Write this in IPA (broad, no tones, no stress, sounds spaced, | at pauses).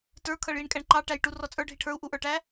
t ə˞ kʰ ʌ ɭ j i ɳ kʼ æ ɳ ǃ ɑ ʈ æ j ʈ u r ɔ t͡sʼ ə˞ ɖʱ i ʈʰ ə˞ u̯ ʔ u ʔ ə˞ ʈ æ